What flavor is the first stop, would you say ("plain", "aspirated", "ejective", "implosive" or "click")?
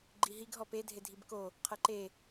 click